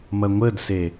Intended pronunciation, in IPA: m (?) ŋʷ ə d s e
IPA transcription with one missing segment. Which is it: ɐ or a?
ɐ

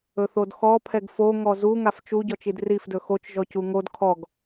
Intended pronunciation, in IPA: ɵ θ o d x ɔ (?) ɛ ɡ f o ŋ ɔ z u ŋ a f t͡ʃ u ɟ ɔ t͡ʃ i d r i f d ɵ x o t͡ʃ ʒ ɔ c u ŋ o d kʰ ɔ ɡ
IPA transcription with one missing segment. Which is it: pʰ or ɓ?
pʰ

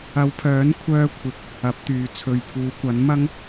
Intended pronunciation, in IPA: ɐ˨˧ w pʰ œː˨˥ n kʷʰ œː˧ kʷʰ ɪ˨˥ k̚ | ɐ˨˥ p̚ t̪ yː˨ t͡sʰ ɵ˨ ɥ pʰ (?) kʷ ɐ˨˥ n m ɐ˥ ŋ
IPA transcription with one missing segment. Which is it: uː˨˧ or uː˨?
uː˨˧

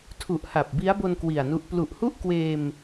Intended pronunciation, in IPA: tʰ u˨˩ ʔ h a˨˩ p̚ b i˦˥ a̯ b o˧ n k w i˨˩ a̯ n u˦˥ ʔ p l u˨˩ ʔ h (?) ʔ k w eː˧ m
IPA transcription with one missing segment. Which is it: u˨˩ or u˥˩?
u˥˩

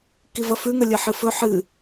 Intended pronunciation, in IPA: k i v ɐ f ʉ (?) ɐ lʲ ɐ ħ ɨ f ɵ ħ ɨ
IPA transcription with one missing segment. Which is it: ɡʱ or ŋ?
ŋ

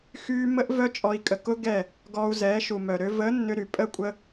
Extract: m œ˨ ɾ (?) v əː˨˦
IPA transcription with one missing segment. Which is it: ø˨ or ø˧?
ø˧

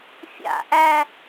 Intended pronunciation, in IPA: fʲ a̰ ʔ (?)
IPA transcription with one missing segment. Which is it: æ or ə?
æ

